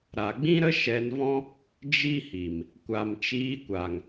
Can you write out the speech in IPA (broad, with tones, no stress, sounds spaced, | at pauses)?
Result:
ɾ a˨ ɡ͡b ĩ˦ ɾ ə˦ ʃ ɛ˧ n v ɔ̃˦ | d͡ʒ i˦ h i˨ m | kʷ a˨ m t͡ʃ iː˧ kʷ a˨ ŋ